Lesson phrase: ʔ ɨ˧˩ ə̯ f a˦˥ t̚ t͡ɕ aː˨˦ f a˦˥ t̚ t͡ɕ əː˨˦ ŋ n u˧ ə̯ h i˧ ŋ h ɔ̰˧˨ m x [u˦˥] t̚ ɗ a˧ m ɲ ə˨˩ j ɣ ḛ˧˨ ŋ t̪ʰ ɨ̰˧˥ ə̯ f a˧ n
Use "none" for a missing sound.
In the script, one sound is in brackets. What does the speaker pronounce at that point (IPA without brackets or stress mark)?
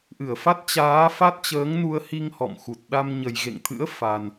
u˨˩